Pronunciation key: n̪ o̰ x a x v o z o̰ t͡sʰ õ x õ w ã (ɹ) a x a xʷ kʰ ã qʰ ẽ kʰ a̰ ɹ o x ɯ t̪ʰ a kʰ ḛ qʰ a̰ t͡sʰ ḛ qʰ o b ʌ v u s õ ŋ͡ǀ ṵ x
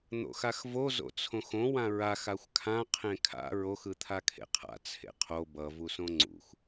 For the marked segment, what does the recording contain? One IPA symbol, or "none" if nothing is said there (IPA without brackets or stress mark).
ɹ